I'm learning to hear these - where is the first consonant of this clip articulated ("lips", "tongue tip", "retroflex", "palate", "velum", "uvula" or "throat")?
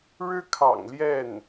retroflex